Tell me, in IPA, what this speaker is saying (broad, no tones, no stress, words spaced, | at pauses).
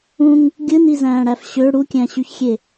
ũŋ | ɡʲɯnizæ̃ːɽæf ɕø ɽukʲæ̃ɕyçxʲe